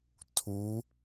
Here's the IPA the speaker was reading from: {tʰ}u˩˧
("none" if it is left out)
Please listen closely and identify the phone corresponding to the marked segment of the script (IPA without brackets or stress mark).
tʰ